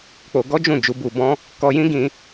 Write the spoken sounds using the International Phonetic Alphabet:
k͡po˧ ɡɔ˦d͡ʒũ˦˨d͡ʒu˨˦ bu˧bɔ̃˦ | kɔ˧jĩ˦ɡĩ˧

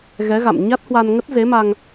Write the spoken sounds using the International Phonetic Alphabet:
ɣɛ˨˦ɣa̰˧˨m ɲa˦˥t̚hwa˧n ŋə˦˥t̚ze˨˦ma˧ŋ

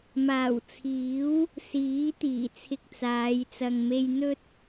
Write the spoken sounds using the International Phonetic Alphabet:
maː˨˩wt͡sʰiː˨˥w | siː˨˥t̪iː˨˩t͡sʰɪ˧k̚t͡saː˨˧j t͡sɐ˨ŋme˧jn̪ɵ˥t̚

